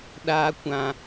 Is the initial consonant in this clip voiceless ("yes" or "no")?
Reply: no